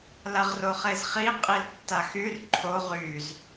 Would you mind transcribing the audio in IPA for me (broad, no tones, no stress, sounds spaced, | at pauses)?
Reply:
l a ʁ r o χ e z χ i qʼ i l tː a x y r ǃʰ o ʁ y z